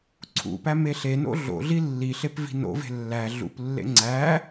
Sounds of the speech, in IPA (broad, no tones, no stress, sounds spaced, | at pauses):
ǀʰ ṵ p æ m e ɬ e n o̰ ɮ o̰ ɮ i lː i ɬ e p v i̤ n o̰ v e̤ lː æ ɮ ṵ p lː ḛ ŋ͡ǀ æ